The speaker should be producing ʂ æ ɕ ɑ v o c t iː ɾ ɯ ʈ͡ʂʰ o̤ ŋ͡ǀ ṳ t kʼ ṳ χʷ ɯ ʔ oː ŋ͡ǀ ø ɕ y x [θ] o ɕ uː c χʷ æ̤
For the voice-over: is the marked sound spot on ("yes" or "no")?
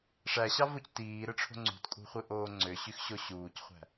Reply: no